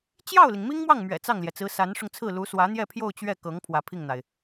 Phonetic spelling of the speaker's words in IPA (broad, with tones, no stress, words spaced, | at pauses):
t͡ɕjɑ˥˩ʊ̯li˩ŋ mi˥ŋmwɑ˥˩ŋmɥɛ̰˨˩ t͡sɑ˥˩ŋljɛ˩t͡sɹ̩˧˥ sa˧˥nʂʊ˧ŋt͡sʰɹ̩˥˩ lu˧˥swä˧˥n̪jɛ˥˧pʰjo˥˧ʊ̯ t͡ɕɥɛ˥˩kɤ˧˥ŋ pʰwä˧˥pʰi˥˩ŋn̪a˩ɪ̯